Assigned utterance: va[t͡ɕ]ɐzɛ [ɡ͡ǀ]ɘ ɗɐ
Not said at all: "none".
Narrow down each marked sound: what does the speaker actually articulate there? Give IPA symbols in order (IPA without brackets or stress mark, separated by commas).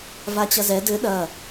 t͡ɕ, d